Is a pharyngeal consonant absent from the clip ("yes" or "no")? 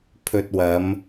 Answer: yes